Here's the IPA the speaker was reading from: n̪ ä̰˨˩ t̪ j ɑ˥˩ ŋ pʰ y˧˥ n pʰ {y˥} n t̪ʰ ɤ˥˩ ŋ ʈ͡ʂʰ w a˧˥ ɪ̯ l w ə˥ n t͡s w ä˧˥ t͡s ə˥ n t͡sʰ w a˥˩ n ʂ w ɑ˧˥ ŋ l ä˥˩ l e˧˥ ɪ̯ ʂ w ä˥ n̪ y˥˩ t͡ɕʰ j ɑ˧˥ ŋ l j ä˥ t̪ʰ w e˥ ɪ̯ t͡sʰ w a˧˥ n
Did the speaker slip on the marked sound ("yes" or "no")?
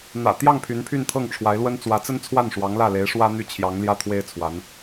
yes